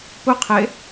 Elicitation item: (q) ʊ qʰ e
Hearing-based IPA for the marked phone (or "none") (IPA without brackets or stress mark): p